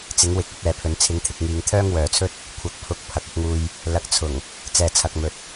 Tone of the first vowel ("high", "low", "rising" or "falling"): rising